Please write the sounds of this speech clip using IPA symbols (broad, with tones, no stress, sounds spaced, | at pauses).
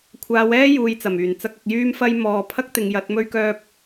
kʷʰ aː˨˧ w ɛː˥ j uː˨ j t͡s ɐ˨˩ m yː˨˩ n t͡s ɐ˥ k̚ ɐ˧ k̚ j yː˥ m f ɐ˥ j m ɔː˨ pʰ ɐ˥ k̚ t̪ ɪ˨˧ ŋ j ɐ˨˥ t̚ m ɵ˥ ɥ k œː˥ p̚